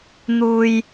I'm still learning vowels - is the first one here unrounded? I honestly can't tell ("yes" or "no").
no